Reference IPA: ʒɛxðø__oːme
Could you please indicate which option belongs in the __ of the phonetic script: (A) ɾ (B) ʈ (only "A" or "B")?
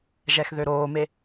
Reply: A